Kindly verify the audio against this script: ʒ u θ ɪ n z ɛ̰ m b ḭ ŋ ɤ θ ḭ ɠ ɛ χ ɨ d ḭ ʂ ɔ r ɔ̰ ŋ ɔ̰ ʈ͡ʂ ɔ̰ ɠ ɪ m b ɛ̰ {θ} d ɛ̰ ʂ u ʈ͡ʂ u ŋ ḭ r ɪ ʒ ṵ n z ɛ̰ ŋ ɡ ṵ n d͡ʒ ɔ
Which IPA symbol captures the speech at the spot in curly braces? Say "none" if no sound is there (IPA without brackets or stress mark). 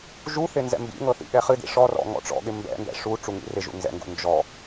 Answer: n